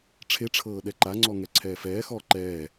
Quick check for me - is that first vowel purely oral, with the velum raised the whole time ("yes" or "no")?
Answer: yes